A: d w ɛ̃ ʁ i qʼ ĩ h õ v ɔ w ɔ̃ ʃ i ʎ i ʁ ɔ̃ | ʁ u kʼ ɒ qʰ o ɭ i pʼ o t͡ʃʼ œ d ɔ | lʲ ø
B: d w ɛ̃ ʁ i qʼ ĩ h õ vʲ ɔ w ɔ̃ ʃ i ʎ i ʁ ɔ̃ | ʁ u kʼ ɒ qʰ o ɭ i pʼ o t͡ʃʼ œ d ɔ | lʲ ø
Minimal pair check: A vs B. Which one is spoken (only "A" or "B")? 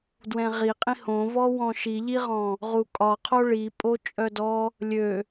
A